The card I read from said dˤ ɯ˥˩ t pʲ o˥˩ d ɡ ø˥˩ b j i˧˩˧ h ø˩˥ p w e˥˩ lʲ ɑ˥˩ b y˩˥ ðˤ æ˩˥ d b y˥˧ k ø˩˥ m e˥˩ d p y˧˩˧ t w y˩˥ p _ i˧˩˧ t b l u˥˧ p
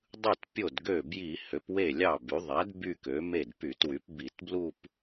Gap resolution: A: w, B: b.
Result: B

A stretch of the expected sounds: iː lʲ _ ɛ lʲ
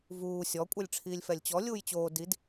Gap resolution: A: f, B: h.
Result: A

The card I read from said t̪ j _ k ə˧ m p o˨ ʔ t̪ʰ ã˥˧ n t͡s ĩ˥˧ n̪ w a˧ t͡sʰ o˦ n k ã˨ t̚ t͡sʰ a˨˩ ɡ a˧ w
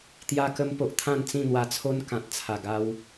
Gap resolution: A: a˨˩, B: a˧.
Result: B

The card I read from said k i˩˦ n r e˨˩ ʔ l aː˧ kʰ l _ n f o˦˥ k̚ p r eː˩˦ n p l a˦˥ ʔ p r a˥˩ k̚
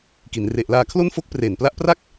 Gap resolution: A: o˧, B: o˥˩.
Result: B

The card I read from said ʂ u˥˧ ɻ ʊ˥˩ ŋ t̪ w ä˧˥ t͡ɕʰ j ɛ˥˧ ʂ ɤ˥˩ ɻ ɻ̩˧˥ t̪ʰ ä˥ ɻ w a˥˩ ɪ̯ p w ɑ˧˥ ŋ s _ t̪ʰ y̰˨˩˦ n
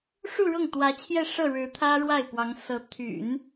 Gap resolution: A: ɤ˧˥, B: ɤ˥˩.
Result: A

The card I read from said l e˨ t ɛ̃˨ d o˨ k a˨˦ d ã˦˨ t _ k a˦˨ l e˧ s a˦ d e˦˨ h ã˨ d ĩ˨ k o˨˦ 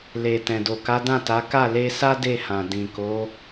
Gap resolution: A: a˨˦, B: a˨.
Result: A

